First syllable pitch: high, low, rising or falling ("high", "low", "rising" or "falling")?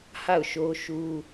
falling